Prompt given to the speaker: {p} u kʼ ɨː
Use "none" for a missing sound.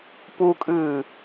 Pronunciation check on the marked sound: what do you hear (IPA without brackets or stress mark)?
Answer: p